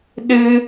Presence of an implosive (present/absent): present